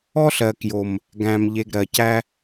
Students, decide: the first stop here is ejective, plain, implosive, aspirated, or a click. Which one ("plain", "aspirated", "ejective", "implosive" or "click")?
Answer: plain